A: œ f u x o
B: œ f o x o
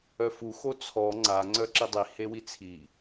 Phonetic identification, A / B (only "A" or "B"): A